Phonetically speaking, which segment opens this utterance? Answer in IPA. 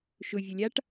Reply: ʃ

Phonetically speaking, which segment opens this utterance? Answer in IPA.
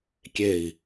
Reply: kʲ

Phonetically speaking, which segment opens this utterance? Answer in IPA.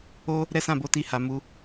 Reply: o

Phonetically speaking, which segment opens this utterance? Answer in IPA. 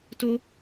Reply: t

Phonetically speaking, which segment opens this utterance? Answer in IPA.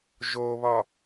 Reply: ʒ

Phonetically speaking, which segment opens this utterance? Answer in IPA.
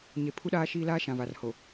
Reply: ɲ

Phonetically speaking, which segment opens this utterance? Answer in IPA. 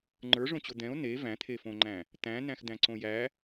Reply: ŋ͡ǃ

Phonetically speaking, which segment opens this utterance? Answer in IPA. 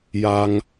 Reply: j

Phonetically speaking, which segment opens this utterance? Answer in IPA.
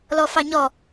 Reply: l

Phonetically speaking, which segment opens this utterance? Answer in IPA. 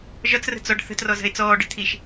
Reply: ʒ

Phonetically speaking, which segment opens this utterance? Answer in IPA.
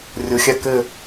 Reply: rʲ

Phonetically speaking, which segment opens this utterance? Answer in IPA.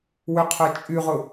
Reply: w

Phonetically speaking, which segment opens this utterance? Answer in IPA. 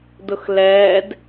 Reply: d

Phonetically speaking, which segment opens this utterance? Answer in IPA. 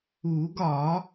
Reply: u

